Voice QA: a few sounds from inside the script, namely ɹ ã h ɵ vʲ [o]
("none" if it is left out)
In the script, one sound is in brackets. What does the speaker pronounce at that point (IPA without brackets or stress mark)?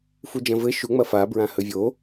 o